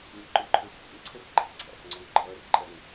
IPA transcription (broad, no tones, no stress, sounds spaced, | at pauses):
ŋ ɪ ǃ ʊ ǃʰ ə˞ bʱ ḭ ŋ ǀʰ ə r ɡ͡ǃ æ̰ x ǀʰ æ̰ x ŋ͡ǀ ɔ ŋ ɡ͡ǃ ʌː r ǃʼ ʌ ŋ